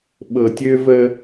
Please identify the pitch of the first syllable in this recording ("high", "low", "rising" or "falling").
low